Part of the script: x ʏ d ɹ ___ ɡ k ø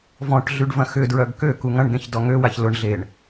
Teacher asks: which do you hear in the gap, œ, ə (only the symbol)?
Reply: œ